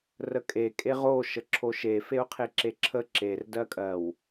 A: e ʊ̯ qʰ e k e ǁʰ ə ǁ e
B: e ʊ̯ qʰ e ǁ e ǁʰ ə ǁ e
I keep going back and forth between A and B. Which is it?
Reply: B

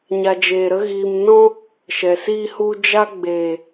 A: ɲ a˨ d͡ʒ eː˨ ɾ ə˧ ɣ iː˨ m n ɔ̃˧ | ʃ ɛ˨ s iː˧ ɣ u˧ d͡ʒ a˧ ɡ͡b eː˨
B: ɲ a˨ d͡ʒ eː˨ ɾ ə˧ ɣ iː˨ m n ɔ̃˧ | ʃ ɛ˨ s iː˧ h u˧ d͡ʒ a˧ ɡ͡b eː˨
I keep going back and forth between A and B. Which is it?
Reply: B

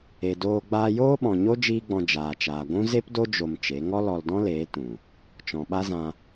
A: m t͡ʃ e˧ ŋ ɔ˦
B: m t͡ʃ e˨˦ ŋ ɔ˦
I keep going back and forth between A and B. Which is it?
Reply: B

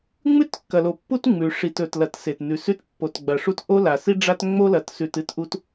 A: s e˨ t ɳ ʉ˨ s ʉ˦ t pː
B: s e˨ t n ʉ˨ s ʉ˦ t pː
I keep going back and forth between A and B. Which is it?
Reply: B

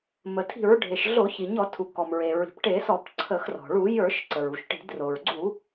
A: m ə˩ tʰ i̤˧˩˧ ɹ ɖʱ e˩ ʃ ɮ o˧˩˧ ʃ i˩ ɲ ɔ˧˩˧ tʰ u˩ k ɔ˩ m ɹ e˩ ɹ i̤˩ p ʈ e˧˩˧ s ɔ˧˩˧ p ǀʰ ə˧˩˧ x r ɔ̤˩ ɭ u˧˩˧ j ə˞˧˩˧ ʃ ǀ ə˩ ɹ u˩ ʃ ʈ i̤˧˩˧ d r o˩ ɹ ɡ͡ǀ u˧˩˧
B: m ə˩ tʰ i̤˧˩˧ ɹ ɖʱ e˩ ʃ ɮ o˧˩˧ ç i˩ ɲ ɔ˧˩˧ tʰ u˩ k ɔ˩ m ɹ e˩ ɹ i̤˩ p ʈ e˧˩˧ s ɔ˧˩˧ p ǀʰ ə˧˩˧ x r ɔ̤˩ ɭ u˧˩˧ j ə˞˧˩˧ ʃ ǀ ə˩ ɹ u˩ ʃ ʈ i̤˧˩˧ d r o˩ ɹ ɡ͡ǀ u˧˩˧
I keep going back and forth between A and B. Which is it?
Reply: B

